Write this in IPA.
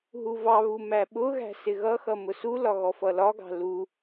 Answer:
ɦ u v ɑ β u m æ ɓ ʊ ɣ æ̤ s ɪ ɣ ʌ x ʌ m ʊ s u l ɒ ɣ ɔ f ʌ l ɒ ɡ ɑ̤ l u

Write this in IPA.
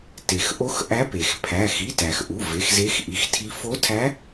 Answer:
t e˩ x ʔ o˧˥ x ʔ æ˧˥ p e˩ x pʰ æ˩˧˩ x i˩˧˩ t æ˩ x ʔ u˩˧˩ v e˩˧˩ x z e˧˥ x ʔ i˩˧˩ x tʰ i˧˥ f o˧˥ tʰ æ˧˥

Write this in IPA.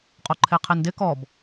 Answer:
qʼ o ǃʰ e qʰ e n d ɪ k ɔ b

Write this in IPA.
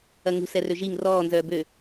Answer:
ɐ ŋ ṳ s ɛ r ø ʒ i ŋ r ɔː n z œː b ø

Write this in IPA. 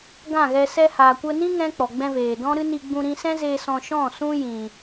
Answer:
ɡ ã˦˨ ɣ ɛ˧ s ɛ˧ h aː˨ kʷ ə˧ n ĩ˦ ŋ ɛ̃˦ k͡p ɔ˨ ɡ͡b ɛ̃˧ v eː˨ d ɔ̃˦ ɾ ɨ˦ n i˧ ɡ͡b ũ˧ ɾ ĩ˧ s ɛ̃˦ z eː˧ s ɔ̃˧ ʃ ɔ̃˦˨ s ũ˦ j ĩ˨

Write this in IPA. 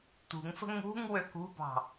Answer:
t̪ ṳ ŋ f ə̤ ŋ ṳ ŋ w ø k ṳ b ɑ̤

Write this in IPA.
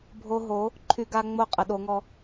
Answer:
bʱ o˦ ɦ o˨˥ | ǃʰ y˦ ɡ a˦ ŋ͡m o˦ qʼ ə˨˥ ɗ o˨˥ ŋ ɔ˦

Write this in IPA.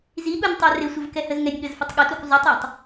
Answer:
z i ɠ u nʲ tˤ ɛ r ɪ sʷ ə v k ɛ h ə z ŋ ɛ nʲ ɠ ə z f ə tˤ ɠ ə t u k zˤ u tˤ ɛ tˤ

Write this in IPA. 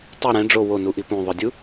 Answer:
tˤ i ɾ ɛ̃ ɖ͡ʐ o w o n u ʔ i p ũ ðˤ ɯ dʲ u

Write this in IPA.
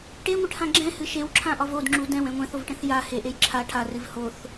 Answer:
ʈ e ŋʷ ɨ ʈ h ã ɡ͡ǁ ɛ̃ h ɨ ʃ e w ǁʰ ã ʔ ɒ v o d ŋ͡ǁ u d ɛ̃ w ɛ̃ ŋʷ ɛ̃ θ o v ʈ ɛ̃ θ j a h e ʔ e j ǁʰ a ʈʰ a r ɨ v h o θ

